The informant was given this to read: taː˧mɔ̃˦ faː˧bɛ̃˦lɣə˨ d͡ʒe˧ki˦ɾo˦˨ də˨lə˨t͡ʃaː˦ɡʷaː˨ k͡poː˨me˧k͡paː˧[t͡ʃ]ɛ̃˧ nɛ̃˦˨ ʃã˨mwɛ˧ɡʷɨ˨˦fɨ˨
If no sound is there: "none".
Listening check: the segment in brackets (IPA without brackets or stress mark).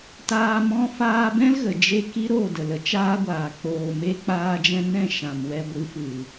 d͡ʒ